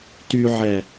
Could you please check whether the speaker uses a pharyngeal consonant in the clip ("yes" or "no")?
yes